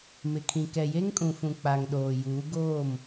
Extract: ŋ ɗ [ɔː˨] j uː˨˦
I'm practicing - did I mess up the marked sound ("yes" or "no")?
yes